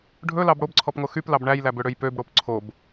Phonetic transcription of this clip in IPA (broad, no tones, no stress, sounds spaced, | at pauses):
ɖʱ ɵ l ɑ b ɽ o b ǀʰ ɔ p ŋ o x y p l ɑ b ɳ æ j l æ b ø ɽ ø j p ø b ɽ o p ǀʰ o b